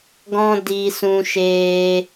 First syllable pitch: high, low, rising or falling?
high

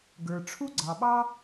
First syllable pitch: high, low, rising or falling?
low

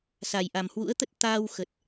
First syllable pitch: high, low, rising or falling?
low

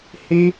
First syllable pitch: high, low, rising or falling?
high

